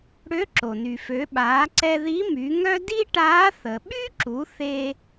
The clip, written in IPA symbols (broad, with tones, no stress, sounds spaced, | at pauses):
ɽ ø˧˥ ǁ o˩ n y˩ f ø˩˧ ɓ aː˩˧ ǀ ɛ˧ ð i˧˥ m y˩˧ ŋ œ˥ d i˥ ʈ aː˧˥ θ ə˩ ɓ y˥ ǁ u˩˧ θ e˧